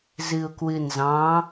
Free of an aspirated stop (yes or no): yes